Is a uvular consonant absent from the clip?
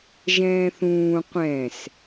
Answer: no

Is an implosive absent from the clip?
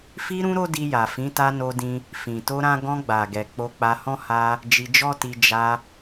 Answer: yes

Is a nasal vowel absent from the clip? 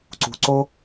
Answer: yes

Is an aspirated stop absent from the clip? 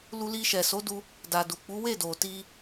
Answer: yes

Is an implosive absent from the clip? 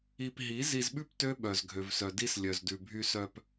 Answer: no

